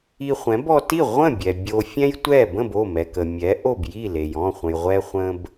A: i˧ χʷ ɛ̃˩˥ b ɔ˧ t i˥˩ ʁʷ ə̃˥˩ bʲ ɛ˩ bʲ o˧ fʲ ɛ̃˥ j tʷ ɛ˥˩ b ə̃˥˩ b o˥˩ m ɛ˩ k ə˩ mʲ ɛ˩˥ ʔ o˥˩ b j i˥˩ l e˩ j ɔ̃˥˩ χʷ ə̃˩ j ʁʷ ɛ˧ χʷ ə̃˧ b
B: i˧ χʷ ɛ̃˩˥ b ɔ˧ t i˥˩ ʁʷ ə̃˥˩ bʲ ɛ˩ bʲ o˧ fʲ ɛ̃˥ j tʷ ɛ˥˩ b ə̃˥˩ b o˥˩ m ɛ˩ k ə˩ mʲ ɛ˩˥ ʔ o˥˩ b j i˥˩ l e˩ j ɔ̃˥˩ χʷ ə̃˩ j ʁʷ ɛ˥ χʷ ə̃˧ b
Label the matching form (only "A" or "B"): A